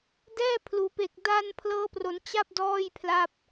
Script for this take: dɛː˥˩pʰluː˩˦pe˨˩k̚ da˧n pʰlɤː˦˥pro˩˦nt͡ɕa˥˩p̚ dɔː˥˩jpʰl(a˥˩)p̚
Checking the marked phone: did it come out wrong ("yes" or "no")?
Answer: no